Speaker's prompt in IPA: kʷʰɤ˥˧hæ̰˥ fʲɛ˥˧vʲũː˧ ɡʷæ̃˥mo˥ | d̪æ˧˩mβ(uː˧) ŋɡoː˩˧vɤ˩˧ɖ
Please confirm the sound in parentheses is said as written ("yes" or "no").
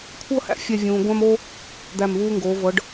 yes